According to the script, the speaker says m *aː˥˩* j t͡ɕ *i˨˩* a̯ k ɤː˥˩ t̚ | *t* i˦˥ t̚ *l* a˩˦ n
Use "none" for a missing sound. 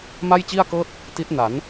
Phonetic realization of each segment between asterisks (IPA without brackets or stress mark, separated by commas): a˥˩, i˥˩, t, n